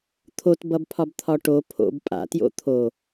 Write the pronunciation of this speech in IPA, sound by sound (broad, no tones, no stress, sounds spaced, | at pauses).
t̪ʰ o t b ʌ b pʰ ɒ b t̪ʰ ɒ ʈ o pʰ o̰ b pʼ a̰ t j o̰ t̪ʰ o